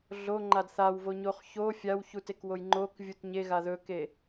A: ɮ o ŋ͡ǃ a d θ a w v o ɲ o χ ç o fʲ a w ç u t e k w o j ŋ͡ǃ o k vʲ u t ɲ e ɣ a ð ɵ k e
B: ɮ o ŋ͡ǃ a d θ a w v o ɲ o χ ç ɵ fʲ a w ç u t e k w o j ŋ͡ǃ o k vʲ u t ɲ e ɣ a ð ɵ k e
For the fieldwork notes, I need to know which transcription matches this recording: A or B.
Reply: A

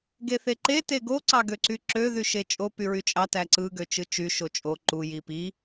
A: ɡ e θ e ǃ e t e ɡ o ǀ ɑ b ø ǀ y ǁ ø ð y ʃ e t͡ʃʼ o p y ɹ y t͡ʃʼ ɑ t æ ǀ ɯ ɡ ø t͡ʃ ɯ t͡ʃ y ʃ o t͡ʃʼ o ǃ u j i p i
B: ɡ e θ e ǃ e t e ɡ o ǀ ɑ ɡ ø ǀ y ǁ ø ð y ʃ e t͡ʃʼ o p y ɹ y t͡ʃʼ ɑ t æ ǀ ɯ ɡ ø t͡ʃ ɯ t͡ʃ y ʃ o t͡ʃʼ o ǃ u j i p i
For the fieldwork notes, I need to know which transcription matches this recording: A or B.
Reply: B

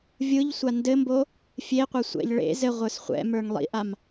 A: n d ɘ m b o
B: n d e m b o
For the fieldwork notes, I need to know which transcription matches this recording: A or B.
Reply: A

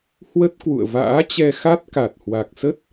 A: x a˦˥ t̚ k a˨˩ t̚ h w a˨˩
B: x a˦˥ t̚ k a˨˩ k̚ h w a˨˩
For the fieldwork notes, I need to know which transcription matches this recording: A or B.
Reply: A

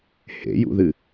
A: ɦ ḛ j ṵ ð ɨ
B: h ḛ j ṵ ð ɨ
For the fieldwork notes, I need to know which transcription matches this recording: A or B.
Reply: B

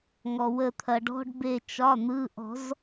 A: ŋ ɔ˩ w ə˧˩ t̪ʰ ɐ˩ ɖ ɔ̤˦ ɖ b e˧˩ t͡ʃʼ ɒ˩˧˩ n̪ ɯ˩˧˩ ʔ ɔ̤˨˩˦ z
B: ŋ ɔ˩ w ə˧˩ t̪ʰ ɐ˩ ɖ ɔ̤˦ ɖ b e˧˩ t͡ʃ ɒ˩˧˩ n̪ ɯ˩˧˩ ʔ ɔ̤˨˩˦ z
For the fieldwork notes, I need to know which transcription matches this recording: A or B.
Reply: B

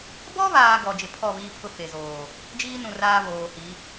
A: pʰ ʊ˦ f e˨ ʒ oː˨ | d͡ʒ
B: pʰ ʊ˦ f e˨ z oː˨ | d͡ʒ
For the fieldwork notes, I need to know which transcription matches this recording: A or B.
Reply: B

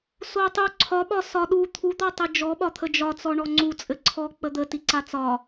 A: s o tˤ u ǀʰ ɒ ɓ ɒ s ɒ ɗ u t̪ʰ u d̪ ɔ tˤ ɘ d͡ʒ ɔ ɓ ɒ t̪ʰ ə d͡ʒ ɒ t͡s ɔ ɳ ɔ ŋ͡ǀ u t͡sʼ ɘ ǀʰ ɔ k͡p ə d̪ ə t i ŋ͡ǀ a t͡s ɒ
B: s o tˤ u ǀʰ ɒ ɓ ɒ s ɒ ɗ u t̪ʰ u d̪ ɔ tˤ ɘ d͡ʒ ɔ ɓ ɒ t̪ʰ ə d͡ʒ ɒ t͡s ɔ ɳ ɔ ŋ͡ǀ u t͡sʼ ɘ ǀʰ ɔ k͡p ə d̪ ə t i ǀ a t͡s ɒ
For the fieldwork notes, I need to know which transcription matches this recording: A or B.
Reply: B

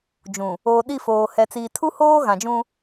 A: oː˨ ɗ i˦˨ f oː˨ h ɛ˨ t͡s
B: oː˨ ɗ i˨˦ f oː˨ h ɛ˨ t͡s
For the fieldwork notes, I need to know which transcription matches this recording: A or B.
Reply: A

